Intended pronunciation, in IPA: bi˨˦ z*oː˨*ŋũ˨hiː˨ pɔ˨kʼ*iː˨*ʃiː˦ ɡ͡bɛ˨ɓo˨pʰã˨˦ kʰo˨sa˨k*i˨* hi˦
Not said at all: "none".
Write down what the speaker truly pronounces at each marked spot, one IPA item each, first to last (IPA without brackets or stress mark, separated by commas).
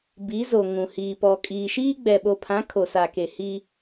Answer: o˨, iː˨, e˨